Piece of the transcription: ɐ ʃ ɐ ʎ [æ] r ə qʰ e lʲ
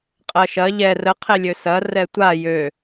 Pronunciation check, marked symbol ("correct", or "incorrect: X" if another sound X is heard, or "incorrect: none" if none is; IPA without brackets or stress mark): incorrect: ɛ